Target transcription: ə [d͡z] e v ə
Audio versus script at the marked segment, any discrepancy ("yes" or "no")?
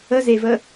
yes